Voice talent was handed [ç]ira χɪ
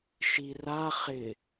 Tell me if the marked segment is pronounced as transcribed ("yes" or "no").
no